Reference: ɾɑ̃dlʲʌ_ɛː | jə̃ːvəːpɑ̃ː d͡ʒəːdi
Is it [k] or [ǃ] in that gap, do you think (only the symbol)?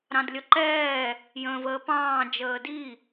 ǃ